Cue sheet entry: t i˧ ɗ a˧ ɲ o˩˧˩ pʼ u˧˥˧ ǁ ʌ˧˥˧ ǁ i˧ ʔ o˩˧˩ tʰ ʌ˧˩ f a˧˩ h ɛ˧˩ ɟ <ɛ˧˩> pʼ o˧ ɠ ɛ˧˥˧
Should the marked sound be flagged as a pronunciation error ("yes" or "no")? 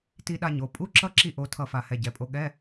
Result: yes